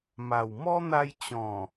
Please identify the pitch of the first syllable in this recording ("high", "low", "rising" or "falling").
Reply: low